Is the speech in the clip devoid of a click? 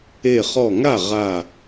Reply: yes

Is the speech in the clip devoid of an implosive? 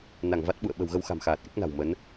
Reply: no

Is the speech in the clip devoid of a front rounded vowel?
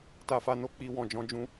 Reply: yes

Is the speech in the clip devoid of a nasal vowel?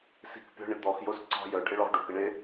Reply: yes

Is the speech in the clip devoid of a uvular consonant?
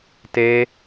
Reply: yes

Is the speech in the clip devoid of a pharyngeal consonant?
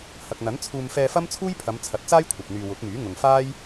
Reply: yes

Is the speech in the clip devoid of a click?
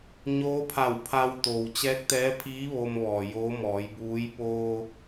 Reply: yes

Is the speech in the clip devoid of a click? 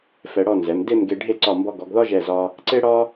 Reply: no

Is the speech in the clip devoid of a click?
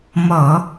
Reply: yes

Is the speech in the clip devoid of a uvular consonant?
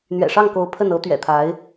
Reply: yes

